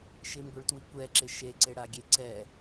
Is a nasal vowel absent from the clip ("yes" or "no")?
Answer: yes